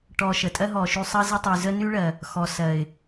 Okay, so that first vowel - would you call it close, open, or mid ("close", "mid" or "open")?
mid